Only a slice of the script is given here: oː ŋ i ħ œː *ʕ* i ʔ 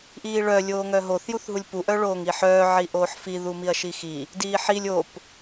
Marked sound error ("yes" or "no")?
no